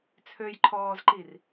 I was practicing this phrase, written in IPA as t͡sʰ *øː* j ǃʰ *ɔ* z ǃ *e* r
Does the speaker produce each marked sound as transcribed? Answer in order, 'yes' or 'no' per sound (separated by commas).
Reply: yes, no, no